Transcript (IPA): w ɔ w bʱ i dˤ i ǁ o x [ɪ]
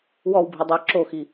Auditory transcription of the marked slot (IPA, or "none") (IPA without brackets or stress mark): i